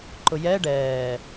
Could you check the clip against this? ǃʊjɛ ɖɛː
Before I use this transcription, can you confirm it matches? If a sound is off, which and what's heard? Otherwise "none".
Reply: none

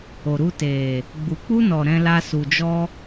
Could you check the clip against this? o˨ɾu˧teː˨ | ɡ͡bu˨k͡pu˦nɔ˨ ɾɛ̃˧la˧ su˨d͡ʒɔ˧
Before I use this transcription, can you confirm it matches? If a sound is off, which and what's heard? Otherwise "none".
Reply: none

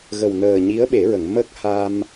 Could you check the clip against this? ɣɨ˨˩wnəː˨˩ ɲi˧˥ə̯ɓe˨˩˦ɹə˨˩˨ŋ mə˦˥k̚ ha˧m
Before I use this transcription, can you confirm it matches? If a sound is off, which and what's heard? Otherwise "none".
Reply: ɨ˨˩ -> ə˨˩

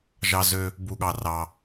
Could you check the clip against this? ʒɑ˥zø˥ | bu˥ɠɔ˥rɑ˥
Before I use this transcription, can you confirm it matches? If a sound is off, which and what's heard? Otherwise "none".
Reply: ɔ˥ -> ɑ˥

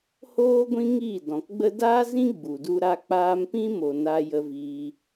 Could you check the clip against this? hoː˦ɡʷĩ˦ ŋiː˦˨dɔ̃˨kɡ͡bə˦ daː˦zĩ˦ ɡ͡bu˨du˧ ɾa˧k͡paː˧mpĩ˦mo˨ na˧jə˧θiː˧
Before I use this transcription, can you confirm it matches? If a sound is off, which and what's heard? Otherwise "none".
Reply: θ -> v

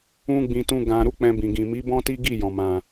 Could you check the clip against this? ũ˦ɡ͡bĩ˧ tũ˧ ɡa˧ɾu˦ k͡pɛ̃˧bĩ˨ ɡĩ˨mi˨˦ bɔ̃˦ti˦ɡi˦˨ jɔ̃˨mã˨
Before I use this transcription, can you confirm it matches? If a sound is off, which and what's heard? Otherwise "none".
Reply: a˧ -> ã˧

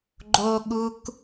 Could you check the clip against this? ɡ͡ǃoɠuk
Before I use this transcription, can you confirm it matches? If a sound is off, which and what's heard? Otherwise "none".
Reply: none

